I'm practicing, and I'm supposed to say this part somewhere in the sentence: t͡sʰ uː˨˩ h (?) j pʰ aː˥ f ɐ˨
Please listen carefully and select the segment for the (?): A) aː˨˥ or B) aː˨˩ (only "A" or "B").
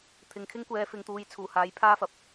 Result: A